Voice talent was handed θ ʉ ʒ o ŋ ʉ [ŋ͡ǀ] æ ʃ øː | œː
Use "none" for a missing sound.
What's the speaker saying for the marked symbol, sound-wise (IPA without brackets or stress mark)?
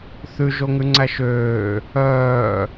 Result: ŋ͡ǀ